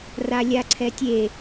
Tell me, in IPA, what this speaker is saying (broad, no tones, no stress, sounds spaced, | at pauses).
r a lʲ a ǀʰ ɛ tʲ e